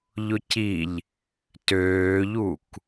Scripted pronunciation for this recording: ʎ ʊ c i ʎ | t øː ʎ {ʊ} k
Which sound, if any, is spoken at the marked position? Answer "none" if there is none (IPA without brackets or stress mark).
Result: u